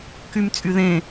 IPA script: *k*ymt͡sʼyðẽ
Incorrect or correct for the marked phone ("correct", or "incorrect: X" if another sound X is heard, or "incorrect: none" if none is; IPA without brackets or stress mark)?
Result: correct